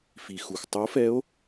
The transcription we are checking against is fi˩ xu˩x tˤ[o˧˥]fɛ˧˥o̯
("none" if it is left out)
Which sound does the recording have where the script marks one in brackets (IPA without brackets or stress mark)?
o˧˥